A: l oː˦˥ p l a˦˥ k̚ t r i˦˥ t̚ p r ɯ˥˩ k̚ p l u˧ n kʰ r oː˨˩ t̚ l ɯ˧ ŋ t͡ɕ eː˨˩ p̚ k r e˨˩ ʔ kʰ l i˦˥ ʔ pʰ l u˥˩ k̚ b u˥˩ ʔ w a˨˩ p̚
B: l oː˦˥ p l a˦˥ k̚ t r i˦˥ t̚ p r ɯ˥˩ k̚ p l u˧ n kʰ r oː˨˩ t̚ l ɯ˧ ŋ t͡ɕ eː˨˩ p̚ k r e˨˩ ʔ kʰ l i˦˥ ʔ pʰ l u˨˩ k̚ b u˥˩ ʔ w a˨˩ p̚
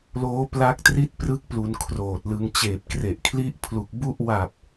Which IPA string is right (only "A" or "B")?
B